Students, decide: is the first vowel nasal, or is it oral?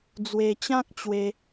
oral